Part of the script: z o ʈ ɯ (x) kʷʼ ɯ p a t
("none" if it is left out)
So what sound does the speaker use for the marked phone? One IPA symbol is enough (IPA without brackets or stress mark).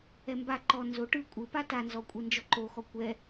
none